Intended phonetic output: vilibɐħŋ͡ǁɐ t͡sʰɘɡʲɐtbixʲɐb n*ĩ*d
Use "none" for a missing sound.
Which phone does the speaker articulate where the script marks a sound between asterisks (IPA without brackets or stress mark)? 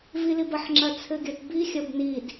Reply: i